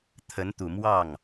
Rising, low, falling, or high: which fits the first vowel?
rising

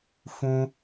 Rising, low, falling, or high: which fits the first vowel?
high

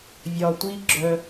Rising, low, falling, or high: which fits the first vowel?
low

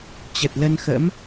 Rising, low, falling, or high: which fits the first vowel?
low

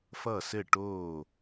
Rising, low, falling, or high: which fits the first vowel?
falling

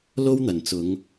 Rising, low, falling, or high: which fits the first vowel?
high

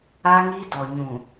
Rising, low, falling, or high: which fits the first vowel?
high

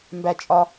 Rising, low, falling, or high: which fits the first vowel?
high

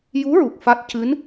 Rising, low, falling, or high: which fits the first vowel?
rising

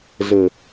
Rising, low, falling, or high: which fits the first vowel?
low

